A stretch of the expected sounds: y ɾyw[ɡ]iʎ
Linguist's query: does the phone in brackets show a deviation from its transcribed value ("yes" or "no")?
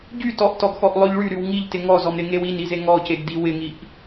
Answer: yes